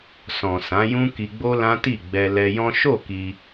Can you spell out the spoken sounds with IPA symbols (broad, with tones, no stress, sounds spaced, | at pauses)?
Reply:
s ɔ̃˨ s ã˨˦ j ũ˦ k i˧ ɡ͡b o˦ l ã˦ t i˦˨ ɡ͡b ɛ˧ l ɛ˧ j ɔ̃˦ ʃ o˦˨ k i˧